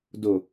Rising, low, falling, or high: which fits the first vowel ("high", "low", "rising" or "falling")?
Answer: low